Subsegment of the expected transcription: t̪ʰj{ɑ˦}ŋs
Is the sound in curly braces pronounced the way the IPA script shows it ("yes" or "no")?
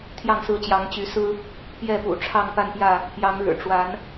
no